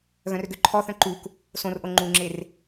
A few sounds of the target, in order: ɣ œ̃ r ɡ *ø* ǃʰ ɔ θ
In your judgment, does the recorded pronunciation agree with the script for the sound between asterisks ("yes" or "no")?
yes